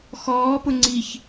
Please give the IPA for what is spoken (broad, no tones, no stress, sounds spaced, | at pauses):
x ɔː p ʊ ŋ͡ǀ i ç